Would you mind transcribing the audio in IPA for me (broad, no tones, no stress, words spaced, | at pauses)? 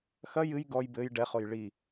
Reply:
xɐ jɨj ɡɔj bɘj ɖɛχoj ɭi